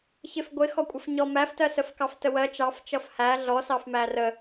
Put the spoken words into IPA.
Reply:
ç ɪ f ɡʷ ɪ x ɔ kʷʼ ʌ f ɲ ɔ m æ f t ɜ s ə f k ɑ f t ə w ɜ t͡ʃ ɑ f t͡ʃ ʌ f h æ ɮ ɔ s ɑ f m æ r ə

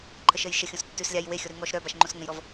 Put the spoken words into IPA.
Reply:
ǃʰ ə ʃ ə j ʃ ə xʲ õ s tː ʉ s lʲ a j w e xʲ ɔ ɾ ʉ ŋ ɔ ʃ ɾ œ b a ʃ ŋ͡ǃ õ s ŋ ə̃ j ɾ ɔ v

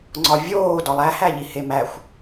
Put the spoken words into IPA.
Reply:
ŋ͡ǀ ɒ vʲ oː d ɒ lˠ æ h æ ʎ i h e m æ xʷ

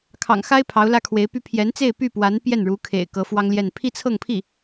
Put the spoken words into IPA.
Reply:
kʰ ɑ̰˨˩ ŋ x a˥ ɪ̯ pʰ ɑ˧˥ ʊ̯ l ä˥ kʰ w e˧˥ ɪ̯ p y˥ pʰ j ɛ˧˥ n t͡s e˥˧ ɪ̯ p y˥˩ p w a˧˥ n p j ɛ˥˩ n ɻ u˧˥ kʰ ḛ˨˩ ɪ̯ k ɤ˧˥ f w ɑ˥ ŋ l j ɛ˥˧ n pʰ i˥˧ t͡sʰ ɤ˥˧ ŋ pʰ i˥˩

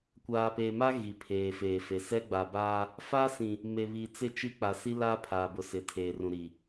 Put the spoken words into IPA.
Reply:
kʷ aː˨ p eː˨ m a˦ ɣ i˨ pʰ eː˨ f eː˨ f e˨ s ɛ˦ ɡ͡b a˨ b aː˦ | f a˦ s ĩ˨ | m e˨ β i˨ t͡s ɪ˦˨ t͡ʃ i˦ k͡p a˨ s i˦ l aː˦ pʰ aː˨ b ʊ˨ s ɪ˨ tʰ eː˨ r ũ˨ ɾ i˨

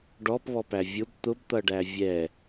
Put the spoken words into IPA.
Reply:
ɖ ɔ p β ɔ p æ vʲ ʊ b t̪ ʊ b t̪ ʌ ɖ æ vʲ ɛ

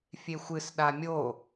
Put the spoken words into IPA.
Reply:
fʲ e xʷ ɨ s ɗ a mʲ o

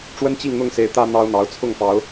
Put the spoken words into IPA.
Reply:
ʈ͡ʂ w ə˦ n t͡ɕ i˥˨ ŋ n̪ ʊ˥˨ ŋ s e˨˦ ɪ̯ t̪ ä˦ n̪ ɑ˦ ʊ̯ n̪ ɑ˨˦ ʊ̯ t͡sʰ ʊ˥˨ ŋ p ɑ˨˦ ʊ̯

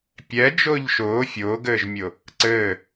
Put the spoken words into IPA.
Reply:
pʲ ɛ d͡ʒ ʊː ʎ ʃ ʊː fʲ ʊː ɡ ɘː ʒ mʲ ʊ | ǀ ɘː

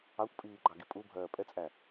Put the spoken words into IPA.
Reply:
ɑ kʷ pʼ iː ɡ͡ǃ ɑ ɡ i pʼ u bʱ ɜː pʼ ɛ t͡sʼ æ

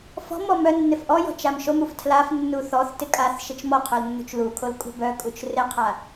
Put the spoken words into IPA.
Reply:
f ɔ̤ m ɔ m œ nː ɪ f ʔ ɔ j ɔ̤ t͡ʃ a m ʃ o m u f tʰ l a f nː u θ ɔ θ t ɪ kʼ a θ ʃ ɪ t͡ʃ m ɔ qʰ o l nː ṳ t͡ʃ l u kʰ o l kʼ ṳ b œ kʼ u t͡ʃ r ɪ qʰ a

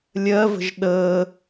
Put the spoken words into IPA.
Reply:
lʲ ɜ v ə̤ ʒ ɗ əː

